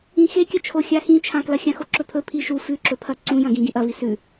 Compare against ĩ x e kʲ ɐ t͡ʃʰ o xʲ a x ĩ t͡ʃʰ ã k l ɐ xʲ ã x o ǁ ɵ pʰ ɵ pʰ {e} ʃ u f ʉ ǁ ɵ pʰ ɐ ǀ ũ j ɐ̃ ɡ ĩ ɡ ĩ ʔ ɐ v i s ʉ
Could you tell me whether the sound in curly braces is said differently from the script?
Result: yes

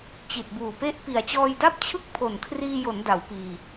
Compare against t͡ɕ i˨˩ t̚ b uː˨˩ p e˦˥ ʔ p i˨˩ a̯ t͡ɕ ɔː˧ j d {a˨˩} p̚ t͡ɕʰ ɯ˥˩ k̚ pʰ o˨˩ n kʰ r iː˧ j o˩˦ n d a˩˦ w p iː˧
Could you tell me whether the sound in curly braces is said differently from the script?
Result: yes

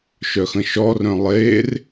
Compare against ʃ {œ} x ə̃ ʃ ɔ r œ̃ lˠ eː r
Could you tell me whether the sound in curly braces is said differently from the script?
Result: no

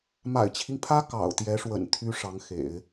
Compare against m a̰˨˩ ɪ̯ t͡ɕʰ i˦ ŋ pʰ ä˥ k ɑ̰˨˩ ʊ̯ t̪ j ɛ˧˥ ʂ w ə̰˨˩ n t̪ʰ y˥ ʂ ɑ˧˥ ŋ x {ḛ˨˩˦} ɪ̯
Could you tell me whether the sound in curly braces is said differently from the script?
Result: no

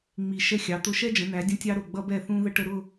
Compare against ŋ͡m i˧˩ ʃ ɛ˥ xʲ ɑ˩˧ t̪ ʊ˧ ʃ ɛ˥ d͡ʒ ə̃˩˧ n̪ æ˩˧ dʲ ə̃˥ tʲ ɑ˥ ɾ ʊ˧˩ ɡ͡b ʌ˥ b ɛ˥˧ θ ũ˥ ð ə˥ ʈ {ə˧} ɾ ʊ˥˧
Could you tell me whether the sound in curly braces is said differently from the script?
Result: no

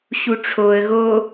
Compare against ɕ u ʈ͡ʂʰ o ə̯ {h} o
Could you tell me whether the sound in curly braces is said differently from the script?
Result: yes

